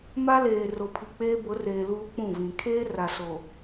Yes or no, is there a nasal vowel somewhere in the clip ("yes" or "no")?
yes